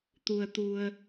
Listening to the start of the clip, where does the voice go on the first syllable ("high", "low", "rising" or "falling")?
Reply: low